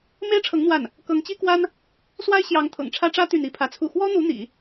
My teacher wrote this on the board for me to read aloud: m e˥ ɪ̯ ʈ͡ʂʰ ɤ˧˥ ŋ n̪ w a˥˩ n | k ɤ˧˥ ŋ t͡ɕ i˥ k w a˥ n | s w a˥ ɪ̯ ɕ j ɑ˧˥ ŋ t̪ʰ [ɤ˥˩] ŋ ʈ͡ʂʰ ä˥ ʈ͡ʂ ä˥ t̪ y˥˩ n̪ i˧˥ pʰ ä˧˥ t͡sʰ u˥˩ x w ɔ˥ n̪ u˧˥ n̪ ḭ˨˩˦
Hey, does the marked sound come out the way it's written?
no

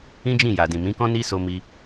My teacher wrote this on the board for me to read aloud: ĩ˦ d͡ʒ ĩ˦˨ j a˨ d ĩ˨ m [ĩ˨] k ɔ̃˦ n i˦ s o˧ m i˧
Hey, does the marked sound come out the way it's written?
no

